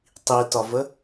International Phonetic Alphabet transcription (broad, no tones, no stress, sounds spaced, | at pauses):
tˤ i t ɒ v ə